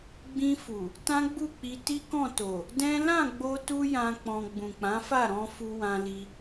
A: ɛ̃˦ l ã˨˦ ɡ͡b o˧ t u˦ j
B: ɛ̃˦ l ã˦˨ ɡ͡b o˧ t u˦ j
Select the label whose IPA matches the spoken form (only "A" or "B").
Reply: B